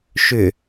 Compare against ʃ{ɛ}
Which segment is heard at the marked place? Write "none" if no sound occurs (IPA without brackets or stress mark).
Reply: ʏ